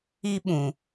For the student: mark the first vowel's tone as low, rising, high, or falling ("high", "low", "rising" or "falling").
high